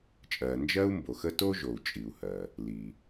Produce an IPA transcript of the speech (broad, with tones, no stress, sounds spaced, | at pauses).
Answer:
t͡ʃʼ ɜ˩ n d͡ʒ ɜ˥ u̯ m b o˩ x ə˥ t o˥ ʒ o˩ u̯ t͡ʃʼ i˩ u̯ h ɜ˩ | l i˩